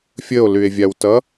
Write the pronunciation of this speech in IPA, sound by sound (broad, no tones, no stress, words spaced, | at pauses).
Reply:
fʲəo̯lye̯vʲawtʌ